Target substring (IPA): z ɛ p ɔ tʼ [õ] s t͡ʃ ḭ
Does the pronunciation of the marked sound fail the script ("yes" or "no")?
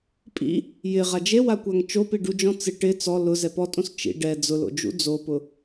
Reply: no